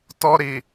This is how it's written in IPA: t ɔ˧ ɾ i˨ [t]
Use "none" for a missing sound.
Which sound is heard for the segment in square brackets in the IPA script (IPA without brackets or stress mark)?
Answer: none